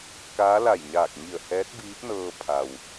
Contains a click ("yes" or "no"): no